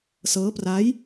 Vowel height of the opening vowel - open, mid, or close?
mid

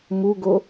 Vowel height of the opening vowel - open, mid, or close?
close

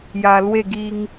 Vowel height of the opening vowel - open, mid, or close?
open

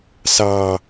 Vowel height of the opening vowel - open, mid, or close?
open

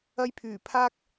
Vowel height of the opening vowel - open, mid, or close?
open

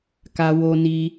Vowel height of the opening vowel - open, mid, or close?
open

